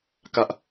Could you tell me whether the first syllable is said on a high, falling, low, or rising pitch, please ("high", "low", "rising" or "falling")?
high